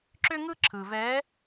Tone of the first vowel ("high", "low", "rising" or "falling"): high